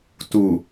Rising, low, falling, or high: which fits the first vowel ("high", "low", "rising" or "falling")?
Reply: low